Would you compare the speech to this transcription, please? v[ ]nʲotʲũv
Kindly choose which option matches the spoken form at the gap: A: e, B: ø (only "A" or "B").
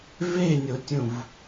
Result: A